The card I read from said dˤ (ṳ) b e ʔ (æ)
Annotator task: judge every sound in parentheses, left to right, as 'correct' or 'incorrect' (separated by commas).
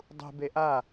correct, incorrect